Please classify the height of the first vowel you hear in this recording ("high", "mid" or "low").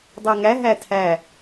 low